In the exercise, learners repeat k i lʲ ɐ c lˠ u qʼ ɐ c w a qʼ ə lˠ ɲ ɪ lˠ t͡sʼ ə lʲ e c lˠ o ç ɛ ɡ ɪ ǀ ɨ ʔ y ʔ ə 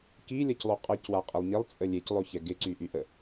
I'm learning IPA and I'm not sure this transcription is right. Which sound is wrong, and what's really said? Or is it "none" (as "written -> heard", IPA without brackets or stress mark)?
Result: ɨ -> y